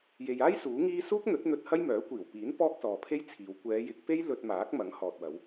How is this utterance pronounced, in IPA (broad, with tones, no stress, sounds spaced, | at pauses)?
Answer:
j e˨ j aː˥ j s uː˨˥ ŋ iː˥ s uː˥ k̚ n̪ ɵ˨˥ t̚ n̪ ɵ˧ t̚ h ɐ˥ j m œː˨˥ kʷ iː˨˩ w p iː˨˥ n p ɔː˥ k̚ s ɔː˨ pʰ e˥ j t͡sʰ iː˨˧ w kʷ ɛː˨˧ j ɪ˨˥ k̚ p e˥ j l ɵ˧ t̚ m aː˨˥ k̚ m ɐ˨˥ ŋ h ɔː˨ t̚ w ɐ˨˧ w